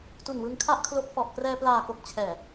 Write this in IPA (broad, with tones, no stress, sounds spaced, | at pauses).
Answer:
t u˨˩ n w ɯ˧ ŋ kʰ a˥˩ ʔ kʰ l o˦˥ k̚ f ɔ˨˩ ʔ k r ɛː˧ p l aː˨˩ k o˨˩ k̚ t͡ɕʰ ɛː˨˩